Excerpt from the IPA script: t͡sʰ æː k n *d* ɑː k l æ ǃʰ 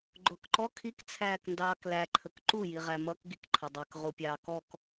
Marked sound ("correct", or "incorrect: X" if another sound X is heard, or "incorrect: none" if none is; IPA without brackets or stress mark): correct